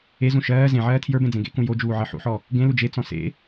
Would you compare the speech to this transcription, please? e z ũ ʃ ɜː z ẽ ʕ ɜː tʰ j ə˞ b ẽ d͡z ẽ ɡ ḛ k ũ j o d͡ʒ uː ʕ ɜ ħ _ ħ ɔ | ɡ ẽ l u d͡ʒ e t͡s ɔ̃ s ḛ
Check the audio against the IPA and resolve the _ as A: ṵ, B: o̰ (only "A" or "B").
A